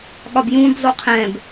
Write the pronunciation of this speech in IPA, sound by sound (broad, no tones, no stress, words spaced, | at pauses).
ɠɒbjũb zˤoqʰɛ̃b